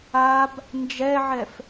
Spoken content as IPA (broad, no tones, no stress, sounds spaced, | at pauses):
a b | n d͡ʒ ɛ ʕ ɛ f